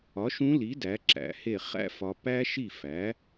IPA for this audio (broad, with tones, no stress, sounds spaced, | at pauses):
ɒ˩˥ ʃ ũ˧˥ l i˩˥ d æ˩˥ ǁ æ̰˩˥ h e˥˩ χ æ̰˥ f ɒ˨ p æ˥ ʃ i˥˩ f æ˩˥